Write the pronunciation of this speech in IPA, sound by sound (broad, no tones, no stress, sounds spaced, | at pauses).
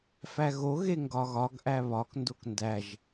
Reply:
f æ ɣ o ɣ e ŋ ɡ ɒ ɣ ɒ ɡ ʔ æ β ɒ k n d o k n d æ ʒ